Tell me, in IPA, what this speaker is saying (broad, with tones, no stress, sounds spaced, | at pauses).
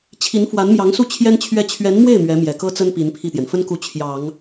t͡ɕʰ i˧˥ n f w a˧˥ n m j ɑ˧˥ ŋ s u˥˩ t͡ɕʰ j ɛ˥ n t͡ɕʰ ɥ ɛ˥˩ t͡ɕʰ ɥ ɛ˧˥ n m w e˥˩ ɪ̯ m ɥ ɛ˧˥ m j ɛ˨˩ k ɤ˥ t͡s ə˥ n p i˧˥ n pʰ i˥˩ t̪ j ɛ˩ n f ə˥ n k u˧˥ t͡ɕʰ j ɑ˨˩˦ ŋ